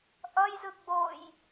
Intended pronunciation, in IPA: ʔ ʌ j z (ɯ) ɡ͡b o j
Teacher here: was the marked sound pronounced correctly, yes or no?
yes